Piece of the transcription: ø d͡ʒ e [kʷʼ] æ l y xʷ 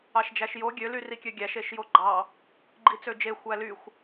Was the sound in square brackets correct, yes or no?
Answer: no